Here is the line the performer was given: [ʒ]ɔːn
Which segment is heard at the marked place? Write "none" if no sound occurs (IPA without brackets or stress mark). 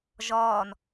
ʒ